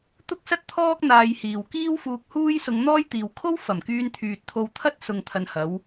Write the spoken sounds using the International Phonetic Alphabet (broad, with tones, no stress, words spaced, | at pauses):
t̪ʊ˥k̚sɐ˥t̚t̪ʰɔː˥k̚ n̪aː˧jhiː˨w kiː˥wfuː˧k̚huː˥j sʊ˧ŋn̪ɔː˥jt̪iː˨w kʰo˥wfɐ˨˩mkyː˧nt̪ʰyː˨t̚ t̪ʰo˧wt̪ʰɐ˥t̚ sʊ˨ŋt̪ʰɐ˨n hɐ˨˧w